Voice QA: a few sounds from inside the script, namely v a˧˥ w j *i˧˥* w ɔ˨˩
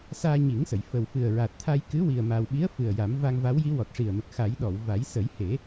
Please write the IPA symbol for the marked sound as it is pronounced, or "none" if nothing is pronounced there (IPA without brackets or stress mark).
i˧˥